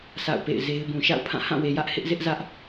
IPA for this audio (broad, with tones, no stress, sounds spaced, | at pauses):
s a̰˦˨ ʊ̯ p ḛ˦˨ ɪ̯ z e˦ ɪ̯ b ũ˨ ʃ a̰˦˨ ʊ̯ pʰ ã˦˨ h ã˦˨ w e˨ j ä˦ ʔ h ɪ˦ ʔ z ɪ˦ ʔ z ä˦ ʔ